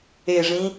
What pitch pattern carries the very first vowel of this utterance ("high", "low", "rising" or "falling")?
falling